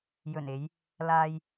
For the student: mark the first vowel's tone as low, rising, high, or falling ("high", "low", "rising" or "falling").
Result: low